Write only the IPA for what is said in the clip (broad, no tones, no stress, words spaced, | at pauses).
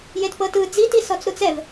jetpɤtɯ d͡ziti sɔt͡sɾut͡sɛv